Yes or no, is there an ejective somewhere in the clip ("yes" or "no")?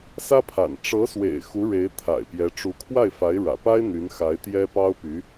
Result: no